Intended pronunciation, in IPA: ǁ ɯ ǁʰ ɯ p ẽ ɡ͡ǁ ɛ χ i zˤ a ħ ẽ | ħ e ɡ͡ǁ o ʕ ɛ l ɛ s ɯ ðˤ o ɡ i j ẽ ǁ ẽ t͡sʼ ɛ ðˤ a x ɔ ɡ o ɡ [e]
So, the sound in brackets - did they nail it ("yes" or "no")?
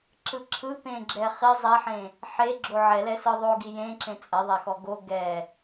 no